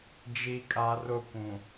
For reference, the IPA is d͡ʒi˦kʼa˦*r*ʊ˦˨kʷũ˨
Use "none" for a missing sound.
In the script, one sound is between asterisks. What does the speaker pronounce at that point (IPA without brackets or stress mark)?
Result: r